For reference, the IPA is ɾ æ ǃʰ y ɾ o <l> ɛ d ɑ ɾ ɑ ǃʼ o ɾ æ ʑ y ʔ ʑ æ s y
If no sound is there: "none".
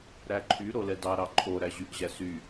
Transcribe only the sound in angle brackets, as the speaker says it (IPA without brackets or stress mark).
l